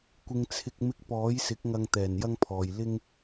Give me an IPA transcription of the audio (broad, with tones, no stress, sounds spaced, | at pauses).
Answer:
kʷ ɪ˨ ŋ t͡sʰ ɪ˨ k̚ m ɪ˨˥ k̚ p ɔː˨˥ j s ɪ˨˥ k̚ ŋ ɐ˨ ŋ t̪ ɛː˨˩ n j ɐ˧ ŋ pʰ ɔː˨ j l ɪ˧ ŋ